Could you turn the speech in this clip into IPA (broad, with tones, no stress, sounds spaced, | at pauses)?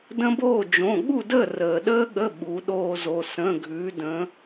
d ə̃˦ b oː˥˨ d͡ʒ õ˩˧˩ ɠ u˥˨ d əː˥˨ r əː˩ ɗ əː˦ ɠ ə˩˧˩ ɓ u˩˧ ɗ oː˦ z o˩˧˩ s ə̃˩˧˩ ɡʱ ʉː˩˧ d ə̃˩˧